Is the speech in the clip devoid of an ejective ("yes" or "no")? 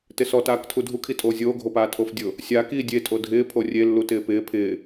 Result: no